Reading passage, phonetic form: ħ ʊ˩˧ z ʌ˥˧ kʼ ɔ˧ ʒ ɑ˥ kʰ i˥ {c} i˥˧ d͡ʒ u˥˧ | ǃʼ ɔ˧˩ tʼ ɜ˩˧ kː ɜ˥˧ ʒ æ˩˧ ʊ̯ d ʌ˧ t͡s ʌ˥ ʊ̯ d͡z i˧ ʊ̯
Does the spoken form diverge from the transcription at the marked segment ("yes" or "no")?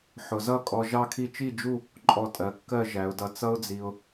yes